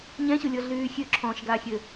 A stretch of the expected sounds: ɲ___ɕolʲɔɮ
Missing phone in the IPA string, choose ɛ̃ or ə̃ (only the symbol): ɛ̃